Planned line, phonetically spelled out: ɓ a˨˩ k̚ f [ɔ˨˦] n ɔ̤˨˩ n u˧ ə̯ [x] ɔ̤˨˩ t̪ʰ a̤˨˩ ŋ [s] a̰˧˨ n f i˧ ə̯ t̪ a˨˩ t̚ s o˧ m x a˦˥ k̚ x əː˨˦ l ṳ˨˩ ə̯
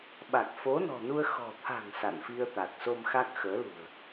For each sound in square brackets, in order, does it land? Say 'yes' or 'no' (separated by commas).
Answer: no, yes, yes